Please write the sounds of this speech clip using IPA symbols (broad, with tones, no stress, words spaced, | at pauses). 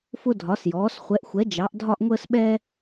fʊ˧dʱɒ˩˧sjɔː˩˧s χʷɛ˩˧ʔxʷɛ˩˧ d͡ʒɑ˩˧ʔdʱɒ˧ʔ ŋʷəː˧sɓɛː˧